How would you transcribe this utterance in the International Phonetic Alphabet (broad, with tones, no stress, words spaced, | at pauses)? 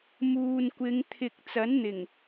muː˨nkʷɪ˨˧ŋ t̪ʰɪ˨k̚ t͡sɐ˨˥nn̪ɪ˨˩ŋ